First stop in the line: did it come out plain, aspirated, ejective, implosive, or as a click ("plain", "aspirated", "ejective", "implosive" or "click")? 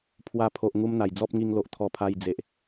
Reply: aspirated